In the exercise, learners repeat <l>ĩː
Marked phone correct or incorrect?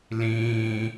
correct